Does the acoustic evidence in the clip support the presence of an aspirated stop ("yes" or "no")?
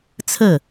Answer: yes